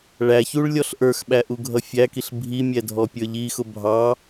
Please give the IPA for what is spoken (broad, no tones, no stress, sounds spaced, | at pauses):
ɭ æ ç u ɭ lʲ ɔ ɬ ʔ ə˞ x ɓ æ ʔ u ɡʱ ʌ fʲ æ k i ɬ bʱ i mʲ ɛ dʱ ɔ pʲ ə˞ ʎ i x ʊ bʱ ɑ